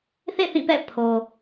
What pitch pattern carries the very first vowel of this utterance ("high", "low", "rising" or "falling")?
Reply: falling